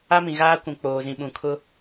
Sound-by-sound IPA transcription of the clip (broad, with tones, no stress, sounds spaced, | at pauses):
a˦ m ĩ˨ ɣ aː˦ kʷ ũ˨ k͡p oː˨ z ĩ˨ ɓ ũ˨ kʰ ʊ˦